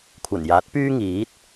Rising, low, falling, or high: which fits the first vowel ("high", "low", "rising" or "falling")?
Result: low